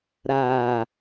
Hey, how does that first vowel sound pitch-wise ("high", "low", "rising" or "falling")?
low